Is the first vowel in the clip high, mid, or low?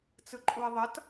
high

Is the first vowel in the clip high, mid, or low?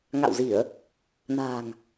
low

